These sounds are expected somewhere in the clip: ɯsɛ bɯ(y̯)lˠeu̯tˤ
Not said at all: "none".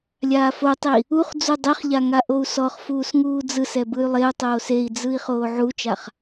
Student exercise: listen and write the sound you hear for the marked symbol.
y̯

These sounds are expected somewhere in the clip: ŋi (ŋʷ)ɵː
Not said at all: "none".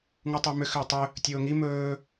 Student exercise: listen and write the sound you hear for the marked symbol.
m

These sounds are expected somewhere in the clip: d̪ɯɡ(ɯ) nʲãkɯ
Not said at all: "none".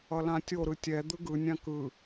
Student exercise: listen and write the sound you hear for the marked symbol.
ɯ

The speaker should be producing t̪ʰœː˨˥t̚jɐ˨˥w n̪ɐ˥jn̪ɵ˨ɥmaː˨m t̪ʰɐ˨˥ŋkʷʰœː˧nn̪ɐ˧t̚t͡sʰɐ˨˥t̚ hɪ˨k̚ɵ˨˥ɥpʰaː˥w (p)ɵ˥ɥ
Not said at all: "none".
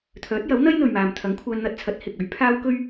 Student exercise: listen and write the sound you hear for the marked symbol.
k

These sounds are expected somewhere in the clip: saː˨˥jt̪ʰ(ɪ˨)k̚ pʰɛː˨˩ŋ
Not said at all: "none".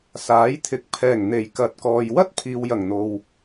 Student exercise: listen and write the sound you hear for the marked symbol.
ɪ˨˥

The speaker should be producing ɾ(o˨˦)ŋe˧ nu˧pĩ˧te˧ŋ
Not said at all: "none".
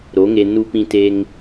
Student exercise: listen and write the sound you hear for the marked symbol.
o˨˦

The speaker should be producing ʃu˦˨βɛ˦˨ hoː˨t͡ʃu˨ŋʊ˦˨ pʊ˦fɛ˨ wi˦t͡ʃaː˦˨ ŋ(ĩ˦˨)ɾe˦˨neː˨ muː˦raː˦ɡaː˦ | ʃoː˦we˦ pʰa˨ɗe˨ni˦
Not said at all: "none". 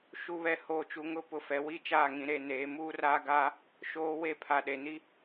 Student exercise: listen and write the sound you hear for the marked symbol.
ĩ˨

